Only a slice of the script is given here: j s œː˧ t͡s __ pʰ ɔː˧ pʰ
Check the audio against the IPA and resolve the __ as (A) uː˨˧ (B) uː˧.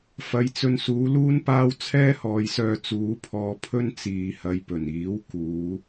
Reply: A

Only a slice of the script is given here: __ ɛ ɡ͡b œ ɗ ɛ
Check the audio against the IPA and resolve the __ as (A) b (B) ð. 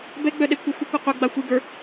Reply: A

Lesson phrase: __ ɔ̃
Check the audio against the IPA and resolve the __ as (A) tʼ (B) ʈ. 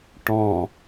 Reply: B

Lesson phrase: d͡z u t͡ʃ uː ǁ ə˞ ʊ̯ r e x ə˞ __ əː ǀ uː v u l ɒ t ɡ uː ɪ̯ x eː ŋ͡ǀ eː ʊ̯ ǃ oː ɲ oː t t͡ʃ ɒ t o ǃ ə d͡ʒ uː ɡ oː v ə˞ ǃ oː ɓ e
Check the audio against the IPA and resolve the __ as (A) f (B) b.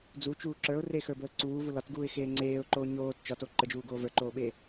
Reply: B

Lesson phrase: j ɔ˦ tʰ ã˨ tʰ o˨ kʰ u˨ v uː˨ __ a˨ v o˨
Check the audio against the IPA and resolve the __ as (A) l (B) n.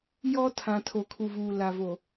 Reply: A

